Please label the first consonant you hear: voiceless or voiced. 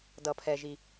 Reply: voiced